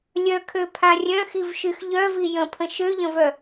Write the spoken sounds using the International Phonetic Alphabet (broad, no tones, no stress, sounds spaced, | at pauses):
lʲ œ kʰ ø pʰ ã rʲ œ̃ x i v ʃ y x ʎ œ v i j ə̃ pʰ ə̃ ʃ ø ʎ ə̃ v œ